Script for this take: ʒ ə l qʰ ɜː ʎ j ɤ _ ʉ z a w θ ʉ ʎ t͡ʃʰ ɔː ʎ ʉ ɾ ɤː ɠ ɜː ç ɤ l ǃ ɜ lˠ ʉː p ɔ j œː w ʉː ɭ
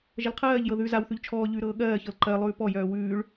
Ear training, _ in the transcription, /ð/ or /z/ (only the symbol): ð